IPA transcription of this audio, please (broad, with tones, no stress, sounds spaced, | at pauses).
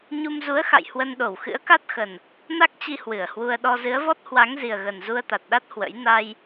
ɲ u˧ m z u˨˦ ə̯ x a̰˧˨ j h w ə˧ n ɗ o˧˩ w x ɨ̰˧˥ ə̯ k a˦˥ t̚ x ə˨˩ n | n a˦˥ k̚ t͡ɕ i˧ h w ɨ˧˩ ə̯ h w u˧ ə̯ ɗ ɔ˧ z ɨ˨˦ ə̯ v ɔ˦˥ t̚ h w a˨˦ ŋ z i˨˩ ə̯ ɣ ə˨˩ n z u˧ ə̯ t̪ a˨˩ t̚ ɗ a˦˥ t̚ h w ə̰˧˥ j n a˧ j